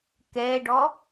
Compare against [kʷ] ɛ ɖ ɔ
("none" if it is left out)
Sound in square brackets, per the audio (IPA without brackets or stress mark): k